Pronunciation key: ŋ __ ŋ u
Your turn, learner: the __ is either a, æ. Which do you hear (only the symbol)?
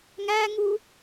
æ